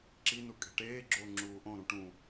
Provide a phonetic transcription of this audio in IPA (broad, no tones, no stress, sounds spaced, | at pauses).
ǁ i n u kʼ e̤ ʈ eː ɡ͡ǁ oː ŋ͡ǁ uː ʔ õ ɾ ũ ʈ ũ